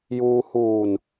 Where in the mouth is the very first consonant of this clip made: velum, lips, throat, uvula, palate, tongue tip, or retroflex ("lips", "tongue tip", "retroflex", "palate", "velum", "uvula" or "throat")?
palate